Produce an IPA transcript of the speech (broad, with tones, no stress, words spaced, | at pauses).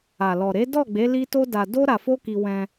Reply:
a˨lɔ˨ɾe˨˦ dɔ˦˨ɡ͡be˨˦ li˦to˦da˧ do˦ ɾa˧fo˦ki˧ wɛ̃˧